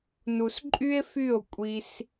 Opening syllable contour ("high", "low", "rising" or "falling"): low